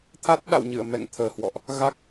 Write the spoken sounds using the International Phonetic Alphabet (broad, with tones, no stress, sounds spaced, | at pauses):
t̪ʰ a˦˥ t̚ ɗ a̰˧˨ w ɲ ɨ̰˧˨ ə̯ m ɛ̰˧˨ ŋ t̪ʰ əː˨˩ h w ɔ̰˧˨ ʔ | ɣ a˦˥ k̚